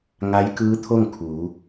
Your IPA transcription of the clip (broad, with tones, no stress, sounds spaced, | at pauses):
ŋ a˧˥ j k ɯː˧˥ t̪ʰ o˥˨ ŋ kʰ uː˩˧